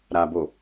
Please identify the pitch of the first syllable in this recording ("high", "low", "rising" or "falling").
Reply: low